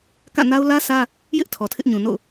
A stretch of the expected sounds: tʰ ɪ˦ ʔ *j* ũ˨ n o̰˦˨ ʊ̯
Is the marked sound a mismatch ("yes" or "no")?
yes